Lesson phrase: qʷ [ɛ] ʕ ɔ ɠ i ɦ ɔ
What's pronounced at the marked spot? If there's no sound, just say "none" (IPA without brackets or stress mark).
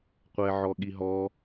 ɛ